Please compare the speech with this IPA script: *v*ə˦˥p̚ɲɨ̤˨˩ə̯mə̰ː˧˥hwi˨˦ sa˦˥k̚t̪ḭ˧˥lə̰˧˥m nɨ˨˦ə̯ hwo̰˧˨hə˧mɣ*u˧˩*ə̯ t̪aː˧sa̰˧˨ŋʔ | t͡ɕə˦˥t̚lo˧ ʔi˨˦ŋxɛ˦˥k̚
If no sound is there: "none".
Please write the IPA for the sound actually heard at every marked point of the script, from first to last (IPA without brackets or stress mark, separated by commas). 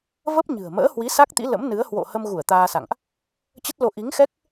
v, u˧˩